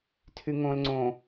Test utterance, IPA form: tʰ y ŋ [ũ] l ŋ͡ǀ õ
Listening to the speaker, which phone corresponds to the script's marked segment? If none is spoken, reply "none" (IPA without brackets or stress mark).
õ